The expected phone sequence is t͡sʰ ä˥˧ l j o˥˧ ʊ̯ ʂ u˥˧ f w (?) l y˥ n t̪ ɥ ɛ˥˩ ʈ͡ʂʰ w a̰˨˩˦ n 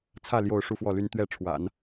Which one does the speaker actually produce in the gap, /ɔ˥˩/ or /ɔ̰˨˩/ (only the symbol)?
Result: ɔ˥˩